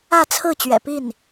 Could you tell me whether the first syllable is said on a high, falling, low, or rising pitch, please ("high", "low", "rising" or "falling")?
falling